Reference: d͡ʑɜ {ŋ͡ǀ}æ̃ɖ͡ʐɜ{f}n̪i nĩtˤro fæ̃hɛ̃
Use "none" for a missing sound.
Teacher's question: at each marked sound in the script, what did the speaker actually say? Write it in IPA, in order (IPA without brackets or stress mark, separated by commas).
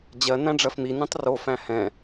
n, f